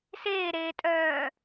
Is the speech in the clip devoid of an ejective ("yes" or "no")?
no